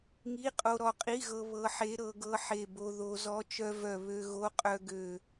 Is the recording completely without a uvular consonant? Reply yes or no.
no